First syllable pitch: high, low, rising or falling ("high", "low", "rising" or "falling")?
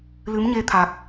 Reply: rising